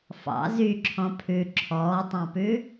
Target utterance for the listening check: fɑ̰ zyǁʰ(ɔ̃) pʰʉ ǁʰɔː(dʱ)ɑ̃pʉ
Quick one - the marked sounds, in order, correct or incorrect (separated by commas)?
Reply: correct, incorrect